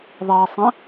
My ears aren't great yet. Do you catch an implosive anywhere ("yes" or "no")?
no